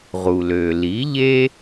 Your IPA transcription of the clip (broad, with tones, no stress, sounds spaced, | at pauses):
ʁ u˩ l ø˩ l i˩˥ ʎ e˥